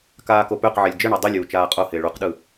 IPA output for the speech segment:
k aː k o p ø q ʕ e lʲ d͡ʒ ɘ ɳ ø dˤ i lʲ uː t͡ʃ aː qʼ o h ɪː ɭ u q ɗ ɯ

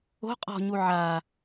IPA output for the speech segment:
o̤ qʼ ɔ̤ ɲ u ʕ a

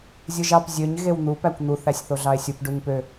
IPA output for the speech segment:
zʲ ɯ ʒ ɑ p zʲ ø ɲ ɣ e w n̪ u p æ kʷ n̪ u θ æ sʲ θ o ɮ ɑ e̯ sʲ u p ɖ u ɲ p ø

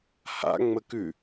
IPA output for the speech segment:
h a̰ ŋ͡m ə k ʉ

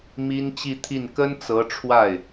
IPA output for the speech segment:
m i˥ n t͡ɕ i˥˧ t̪ʰ i˥˩ n k ə˥ n t͡s ɤ˧˥ ʈ͡ʂʰ w a˥˩ ɪ̯

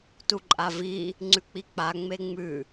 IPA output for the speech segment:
t u ǃʼ a v i | ŋ͡ǀ ʉ k͡p i k͡p a ŋ͡m e ŋ͡m ʉ

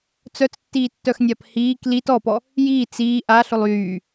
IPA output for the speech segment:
t͡s œ t͡s tː iː tː œ x nʲ a p h iː k l i t ɔ p ɔ | j iː t͡s iː ʔ a ɬ ʊ lˠ yː

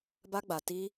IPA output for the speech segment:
b a˦ ɡ͡b a˧ t i˦

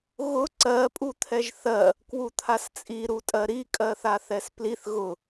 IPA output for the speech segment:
ɣ ʊ ǀ ɜ pʼ u t̪ʰ ɛ ʒ θ ɜ | k w u t̪ʰ a s t͡sʼ i ɾ u tʼ ɜ ɾ i kʼ ɜ θ a θ ɛ s p l i θ ɣ ʊ

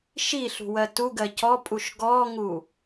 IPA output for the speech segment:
ʃ i ɬ ṳ w ɜ t u ɡ ɜ c ɔ pʼ u ʃ ɡ ɔ ŋ u

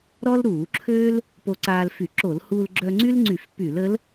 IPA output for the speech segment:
ɾ ɔ˥ l ɾ uː˧˩˧ ǁʰ øː˥ l | p o˧ ǀ aː˧ l f y˧˩˧ ǁ o˧˩˧ l h uː˧ l ɡ͡ǁ œ˧ ŋ͡ǀ y˥ l ŋ͡ǀ y˧˩˧ f p y˧˩˧ l ə˧˥ l

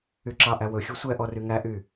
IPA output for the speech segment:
y ǁ ɑ ʔ æ w ɵ xʲ u sʷ ɛ ʔ ɔ r y ŋ æ ʔ y

